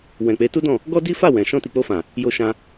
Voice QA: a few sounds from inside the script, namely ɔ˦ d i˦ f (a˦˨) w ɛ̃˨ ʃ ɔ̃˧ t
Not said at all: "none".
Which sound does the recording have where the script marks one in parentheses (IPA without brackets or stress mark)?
a˦˨